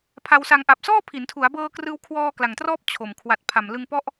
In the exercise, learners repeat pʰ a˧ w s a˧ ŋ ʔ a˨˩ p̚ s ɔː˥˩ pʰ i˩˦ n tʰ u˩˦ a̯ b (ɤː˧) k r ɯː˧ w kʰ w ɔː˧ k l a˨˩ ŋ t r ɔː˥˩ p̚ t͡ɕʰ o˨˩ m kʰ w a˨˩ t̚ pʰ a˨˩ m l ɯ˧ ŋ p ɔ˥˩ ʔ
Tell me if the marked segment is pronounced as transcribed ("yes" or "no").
yes